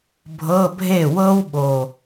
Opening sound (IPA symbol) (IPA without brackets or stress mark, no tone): bʱ